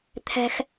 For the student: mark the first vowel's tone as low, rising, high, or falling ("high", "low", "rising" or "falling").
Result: high